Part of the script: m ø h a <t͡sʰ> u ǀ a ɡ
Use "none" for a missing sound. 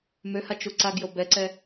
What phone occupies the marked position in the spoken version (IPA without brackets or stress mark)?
t͡ʃ